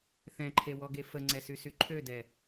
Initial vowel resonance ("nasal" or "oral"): nasal